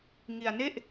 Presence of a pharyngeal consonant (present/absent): absent